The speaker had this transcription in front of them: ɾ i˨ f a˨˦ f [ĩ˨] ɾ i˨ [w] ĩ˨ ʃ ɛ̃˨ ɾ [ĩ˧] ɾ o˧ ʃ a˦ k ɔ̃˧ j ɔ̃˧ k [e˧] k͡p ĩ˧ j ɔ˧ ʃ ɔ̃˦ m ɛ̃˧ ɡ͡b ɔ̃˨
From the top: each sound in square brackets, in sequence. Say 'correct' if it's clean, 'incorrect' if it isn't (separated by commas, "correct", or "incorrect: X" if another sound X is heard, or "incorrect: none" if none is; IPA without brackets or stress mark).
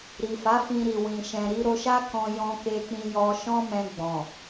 incorrect: ĩ˧, correct, incorrect: i˧, correct